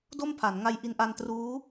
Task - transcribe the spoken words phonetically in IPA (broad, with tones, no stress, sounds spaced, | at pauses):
d o˥˩ m pʰ a˩˦ n ŋ a˧ j ʔ i˧ n ʔ a˧ n t r uː˦˥